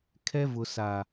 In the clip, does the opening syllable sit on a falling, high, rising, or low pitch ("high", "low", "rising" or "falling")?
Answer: high